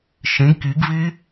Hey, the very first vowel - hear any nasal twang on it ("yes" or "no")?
yes